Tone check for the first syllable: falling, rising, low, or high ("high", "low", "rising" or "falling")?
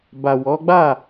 low